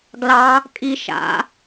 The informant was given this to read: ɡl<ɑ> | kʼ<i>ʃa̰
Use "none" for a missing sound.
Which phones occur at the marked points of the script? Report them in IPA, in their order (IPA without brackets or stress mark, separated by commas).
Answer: ɑ, i